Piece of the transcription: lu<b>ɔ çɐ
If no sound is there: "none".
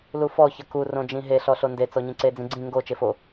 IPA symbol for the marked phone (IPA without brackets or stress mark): f